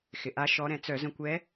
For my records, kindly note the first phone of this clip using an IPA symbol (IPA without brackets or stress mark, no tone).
x